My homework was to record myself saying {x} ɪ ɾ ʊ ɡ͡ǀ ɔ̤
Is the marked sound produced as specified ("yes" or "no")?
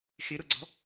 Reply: yes